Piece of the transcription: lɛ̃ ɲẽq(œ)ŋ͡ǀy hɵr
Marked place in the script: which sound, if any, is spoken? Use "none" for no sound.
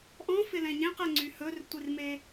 ɛ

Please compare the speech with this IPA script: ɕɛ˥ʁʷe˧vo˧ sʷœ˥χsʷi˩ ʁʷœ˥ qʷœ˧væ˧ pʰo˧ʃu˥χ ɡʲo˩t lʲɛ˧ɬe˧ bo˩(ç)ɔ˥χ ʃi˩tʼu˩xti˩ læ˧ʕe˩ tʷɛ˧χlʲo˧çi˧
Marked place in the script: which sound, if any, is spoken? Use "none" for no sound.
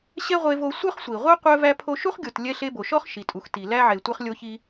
ʃ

